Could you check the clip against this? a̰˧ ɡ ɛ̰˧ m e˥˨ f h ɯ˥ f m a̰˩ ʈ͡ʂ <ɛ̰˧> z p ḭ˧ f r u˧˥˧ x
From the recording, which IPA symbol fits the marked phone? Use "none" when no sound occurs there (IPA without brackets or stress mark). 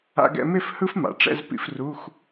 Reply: ɛ̰˥˨